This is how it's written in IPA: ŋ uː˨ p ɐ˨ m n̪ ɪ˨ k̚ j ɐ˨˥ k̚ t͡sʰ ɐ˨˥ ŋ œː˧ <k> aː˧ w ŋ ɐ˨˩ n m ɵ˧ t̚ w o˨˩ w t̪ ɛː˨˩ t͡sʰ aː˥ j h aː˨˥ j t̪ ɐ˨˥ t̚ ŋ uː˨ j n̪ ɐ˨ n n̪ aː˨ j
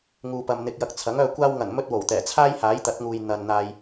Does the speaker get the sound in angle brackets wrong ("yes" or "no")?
yes